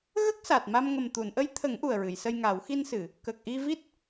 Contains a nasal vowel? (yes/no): no